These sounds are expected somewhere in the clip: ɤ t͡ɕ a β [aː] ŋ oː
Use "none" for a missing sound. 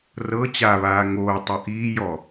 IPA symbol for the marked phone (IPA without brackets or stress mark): aː